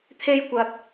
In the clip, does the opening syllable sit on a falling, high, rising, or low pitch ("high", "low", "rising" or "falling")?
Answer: high